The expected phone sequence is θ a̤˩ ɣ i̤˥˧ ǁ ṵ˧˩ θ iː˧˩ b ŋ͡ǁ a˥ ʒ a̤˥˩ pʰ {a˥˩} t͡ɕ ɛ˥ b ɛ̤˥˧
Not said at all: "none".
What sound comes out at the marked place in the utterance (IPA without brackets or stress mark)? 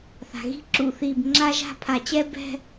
a˨˩˦